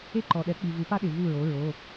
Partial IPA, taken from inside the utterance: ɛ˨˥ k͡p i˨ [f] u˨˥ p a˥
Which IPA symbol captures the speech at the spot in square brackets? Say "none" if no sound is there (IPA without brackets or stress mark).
v